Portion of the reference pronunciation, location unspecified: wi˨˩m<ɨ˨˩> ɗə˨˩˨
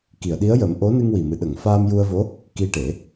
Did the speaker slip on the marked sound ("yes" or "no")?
no